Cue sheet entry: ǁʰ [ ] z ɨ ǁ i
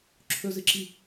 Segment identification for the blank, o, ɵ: ɵ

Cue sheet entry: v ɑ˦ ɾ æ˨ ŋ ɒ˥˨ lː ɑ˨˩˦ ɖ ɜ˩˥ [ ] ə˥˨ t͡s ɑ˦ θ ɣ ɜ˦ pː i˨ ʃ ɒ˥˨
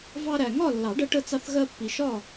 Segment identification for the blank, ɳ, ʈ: ʈ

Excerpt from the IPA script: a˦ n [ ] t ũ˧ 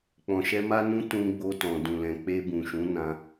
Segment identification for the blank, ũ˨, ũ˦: ũ˦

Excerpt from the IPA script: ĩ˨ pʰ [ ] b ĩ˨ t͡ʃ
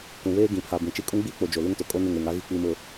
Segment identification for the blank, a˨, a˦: a˨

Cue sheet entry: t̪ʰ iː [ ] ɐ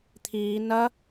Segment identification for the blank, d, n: n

